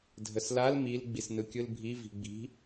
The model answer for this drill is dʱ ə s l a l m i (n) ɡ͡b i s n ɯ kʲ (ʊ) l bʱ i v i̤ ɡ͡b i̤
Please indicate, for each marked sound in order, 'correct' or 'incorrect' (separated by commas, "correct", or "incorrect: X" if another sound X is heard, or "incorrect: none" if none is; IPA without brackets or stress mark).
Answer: incorrect: l, incorrect: ɯ